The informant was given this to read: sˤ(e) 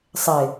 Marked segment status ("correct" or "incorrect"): correct